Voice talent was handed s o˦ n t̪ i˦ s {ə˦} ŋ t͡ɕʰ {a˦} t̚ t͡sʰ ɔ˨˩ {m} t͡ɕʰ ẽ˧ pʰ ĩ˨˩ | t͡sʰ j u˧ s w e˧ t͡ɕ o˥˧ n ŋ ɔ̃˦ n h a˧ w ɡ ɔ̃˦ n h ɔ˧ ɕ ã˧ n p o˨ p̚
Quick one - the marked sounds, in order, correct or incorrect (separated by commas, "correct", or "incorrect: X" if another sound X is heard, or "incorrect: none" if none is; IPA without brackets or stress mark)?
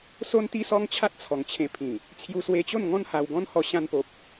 incorrect: ɔ˦, correct, incorrect: ŋ